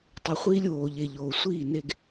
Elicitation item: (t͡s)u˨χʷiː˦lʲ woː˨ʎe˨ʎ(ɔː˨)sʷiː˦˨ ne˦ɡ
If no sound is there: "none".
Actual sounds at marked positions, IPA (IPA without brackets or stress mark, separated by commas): tˤ, oː˨